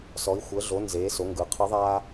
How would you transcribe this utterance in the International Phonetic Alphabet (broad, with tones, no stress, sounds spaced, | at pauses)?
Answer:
s ɔ˩˧ i̯ xʷ əː˩˧ ɮ o˩˧ n z eː˩˧ s o˩˧ ŋ ɡ ɯ˩˧ qʰ ɯ˧˥ ðˤ aː˥